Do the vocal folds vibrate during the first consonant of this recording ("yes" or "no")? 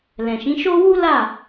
yes